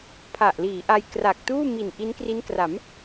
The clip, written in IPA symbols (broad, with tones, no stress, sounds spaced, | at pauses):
pʰ a˨˩ ʔ l iː˩˦ ʔ a˧ j k r a˨˩ k̚ t uː˥˩ m i˨˩ n ʔ i˦˥ n k r i˦˥ n k r a˩˦ m